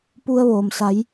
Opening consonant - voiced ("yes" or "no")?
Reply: no